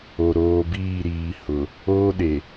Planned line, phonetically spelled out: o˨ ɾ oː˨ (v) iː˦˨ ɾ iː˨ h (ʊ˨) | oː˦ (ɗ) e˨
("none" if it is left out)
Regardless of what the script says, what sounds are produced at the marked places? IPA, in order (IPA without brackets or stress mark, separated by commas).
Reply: b, ʊ˨, ɗ